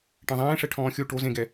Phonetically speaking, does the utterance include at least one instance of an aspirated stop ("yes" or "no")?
yes